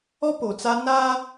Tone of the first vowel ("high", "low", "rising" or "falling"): high